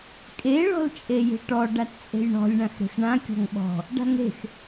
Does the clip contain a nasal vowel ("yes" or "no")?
yes